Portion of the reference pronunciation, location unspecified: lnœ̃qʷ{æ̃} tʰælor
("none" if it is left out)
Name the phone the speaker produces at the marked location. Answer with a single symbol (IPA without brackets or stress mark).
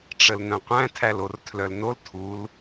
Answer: æ̃